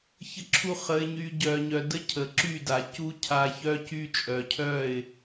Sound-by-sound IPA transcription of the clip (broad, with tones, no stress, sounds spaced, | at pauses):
ç ə˦ ǁʰ u˦ χ ə˧ ɪ̯ ɲ y˧ ɟ œ˨ ɲ œ˨ d ə˦ cʰ ə˨ ǁ y˦˨ d a˨ c u˦ cʰ a˧ ç œ˦ c y˦ t͡ʃʼ œ˨ cʰ œ˦˨ ɪ̯